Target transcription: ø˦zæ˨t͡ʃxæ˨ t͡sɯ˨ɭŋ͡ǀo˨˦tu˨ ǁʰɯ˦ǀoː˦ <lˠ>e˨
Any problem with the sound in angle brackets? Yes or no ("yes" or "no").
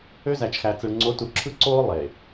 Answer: no